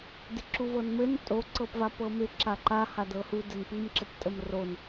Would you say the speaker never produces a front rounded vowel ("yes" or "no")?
yes